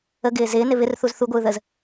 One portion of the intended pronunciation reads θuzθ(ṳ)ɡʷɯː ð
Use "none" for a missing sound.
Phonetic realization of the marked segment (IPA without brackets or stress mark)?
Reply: u